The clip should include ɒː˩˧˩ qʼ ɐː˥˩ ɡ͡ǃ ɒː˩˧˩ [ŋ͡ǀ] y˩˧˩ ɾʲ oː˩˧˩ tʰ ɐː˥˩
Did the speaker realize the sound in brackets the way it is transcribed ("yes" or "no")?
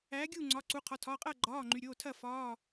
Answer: no